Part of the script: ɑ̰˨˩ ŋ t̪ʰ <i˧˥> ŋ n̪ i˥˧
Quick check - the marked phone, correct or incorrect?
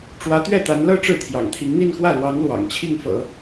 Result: correct